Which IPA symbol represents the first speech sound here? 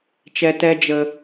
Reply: t͡ʃ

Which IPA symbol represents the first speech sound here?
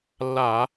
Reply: lː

